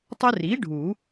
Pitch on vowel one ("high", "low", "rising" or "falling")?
high